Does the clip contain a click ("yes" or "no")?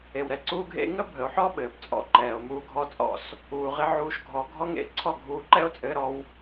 yes